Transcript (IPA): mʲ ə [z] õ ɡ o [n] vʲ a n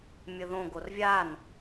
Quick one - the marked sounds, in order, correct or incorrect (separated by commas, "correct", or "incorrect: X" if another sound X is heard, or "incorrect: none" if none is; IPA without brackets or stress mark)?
incorrect: ð, incorrect: r